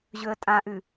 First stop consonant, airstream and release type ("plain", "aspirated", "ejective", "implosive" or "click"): ejective